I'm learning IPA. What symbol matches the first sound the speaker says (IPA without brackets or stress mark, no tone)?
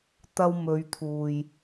t̪